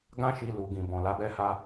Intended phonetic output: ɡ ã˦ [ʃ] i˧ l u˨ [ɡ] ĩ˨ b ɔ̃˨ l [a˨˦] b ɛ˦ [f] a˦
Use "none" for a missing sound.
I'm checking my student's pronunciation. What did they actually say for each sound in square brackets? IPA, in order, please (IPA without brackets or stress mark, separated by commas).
ʃ, ɡ, a˨˦, h